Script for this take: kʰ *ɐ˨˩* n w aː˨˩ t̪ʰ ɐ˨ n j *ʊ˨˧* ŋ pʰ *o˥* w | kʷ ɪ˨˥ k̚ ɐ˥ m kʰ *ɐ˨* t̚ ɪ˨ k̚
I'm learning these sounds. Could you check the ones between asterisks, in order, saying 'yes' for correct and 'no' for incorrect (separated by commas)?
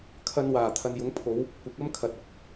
no, yes, no, yes